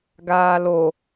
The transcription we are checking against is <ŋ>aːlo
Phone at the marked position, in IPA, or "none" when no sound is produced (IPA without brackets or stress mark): ɡ